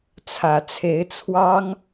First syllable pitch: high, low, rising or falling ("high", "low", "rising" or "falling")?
low